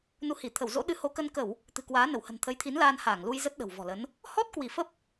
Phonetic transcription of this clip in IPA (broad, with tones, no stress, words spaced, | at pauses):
nu˨˦hi˧˩ t̪ʰə˧˩wzo̰˧˥ ɗɨ˨˦ho˨˦kə˧n kə˧˩˨w | t̪ɨ̤˨˩kwaː˨˦nə˧˩whə̤˨˩n t̪ʰə˨˦jt̪ʰi˨˦nlaː˧n haː˧˩ŋlu˧jzə˦˥t̚ ɗə̤˨˩wvɔ̤˨˩lə˨˦n | hɔ˦˥t̚ kwi˧˩fə˦˥p̚